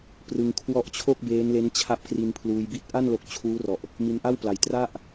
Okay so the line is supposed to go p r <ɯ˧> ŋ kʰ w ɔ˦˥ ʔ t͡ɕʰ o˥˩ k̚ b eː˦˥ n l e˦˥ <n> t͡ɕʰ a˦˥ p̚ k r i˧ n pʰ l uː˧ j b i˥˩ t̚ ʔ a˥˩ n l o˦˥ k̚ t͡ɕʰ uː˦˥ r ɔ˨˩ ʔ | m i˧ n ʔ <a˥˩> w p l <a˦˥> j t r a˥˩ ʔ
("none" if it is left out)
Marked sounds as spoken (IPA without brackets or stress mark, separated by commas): ɯ˧, n, a˥˩, a˨˩